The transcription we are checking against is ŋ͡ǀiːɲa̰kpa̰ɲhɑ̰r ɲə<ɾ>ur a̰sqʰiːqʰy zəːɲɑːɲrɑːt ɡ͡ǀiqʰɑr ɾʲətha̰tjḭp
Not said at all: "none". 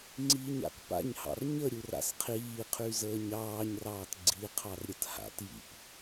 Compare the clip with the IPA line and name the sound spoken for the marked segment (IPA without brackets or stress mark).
ɾʲ